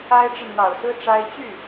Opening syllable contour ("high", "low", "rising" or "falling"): high